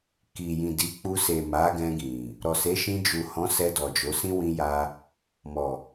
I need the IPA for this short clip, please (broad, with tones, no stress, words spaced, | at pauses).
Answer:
ki˨jĩ˨ di˨˦k͡pu˧ se˨ ma˨˦ɡɛ̃˧ɡĩ˨ | ɾɔ˨se˨˦ʃĩ˧ d͡ʒu˨hɔ̃˨˦ sɛ˧dɔ˨d͡ʒo˨˦sĩ˦ wĩ˦ja˦ | mɔ˨